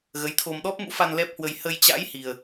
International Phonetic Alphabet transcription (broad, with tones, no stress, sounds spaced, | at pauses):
ɣ ə˨˦ j t̪ʰ o˧ m ɗ ɔ˦˥ p̚ m ṵ˧˥ f a˧ n l ɛ˦˥ p̚ h w ə˧ j h ə˧ j t͡ɕ a̰˧˥ j h i˧ ə̯